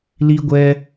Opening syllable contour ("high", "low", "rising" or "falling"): high